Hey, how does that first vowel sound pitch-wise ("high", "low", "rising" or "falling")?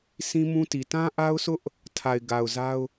high